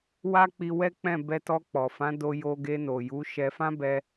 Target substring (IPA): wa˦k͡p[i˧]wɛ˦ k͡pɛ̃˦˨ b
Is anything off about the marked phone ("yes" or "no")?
no